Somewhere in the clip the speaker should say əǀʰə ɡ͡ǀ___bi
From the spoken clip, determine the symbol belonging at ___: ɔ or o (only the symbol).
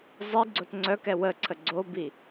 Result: o